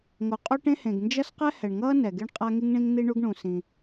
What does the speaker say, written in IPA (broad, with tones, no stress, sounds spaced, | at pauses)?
ŋ o˩ qʼ o˥ ʈ ẽ˥ h ẽ˩ ɡ n d͡ʒ ʌ˥ s q ɛ˥ h ɛ˩ ɳ ŋ ʌː˥ n ɛ˩ ɡ e˥ ɳ qʼ a˥ ŋ i˥ ŋ ɳ ĩ˥ ŋ n̪ i˥ ɳ u˥ ɡ ɳ ũ˩ s ĩ˩